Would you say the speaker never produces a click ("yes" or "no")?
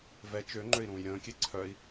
no